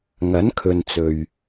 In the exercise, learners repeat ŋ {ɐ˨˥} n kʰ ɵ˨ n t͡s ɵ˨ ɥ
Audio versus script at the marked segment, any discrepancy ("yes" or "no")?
no